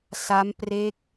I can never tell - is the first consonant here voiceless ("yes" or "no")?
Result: yes